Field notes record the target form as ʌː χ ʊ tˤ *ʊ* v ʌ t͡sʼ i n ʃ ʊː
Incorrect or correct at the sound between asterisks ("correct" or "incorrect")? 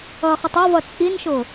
incorrect